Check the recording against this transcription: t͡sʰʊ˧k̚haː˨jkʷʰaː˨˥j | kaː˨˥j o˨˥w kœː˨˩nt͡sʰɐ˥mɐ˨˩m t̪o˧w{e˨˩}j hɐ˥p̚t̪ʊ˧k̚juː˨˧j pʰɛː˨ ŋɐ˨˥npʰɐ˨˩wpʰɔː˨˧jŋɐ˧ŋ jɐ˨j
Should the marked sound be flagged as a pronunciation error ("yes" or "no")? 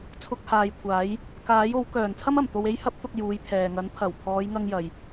yes